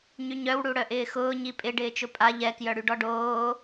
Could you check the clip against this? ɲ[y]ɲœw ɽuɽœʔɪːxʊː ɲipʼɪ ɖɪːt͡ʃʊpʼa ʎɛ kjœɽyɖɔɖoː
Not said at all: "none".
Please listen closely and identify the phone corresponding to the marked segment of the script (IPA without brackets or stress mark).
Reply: y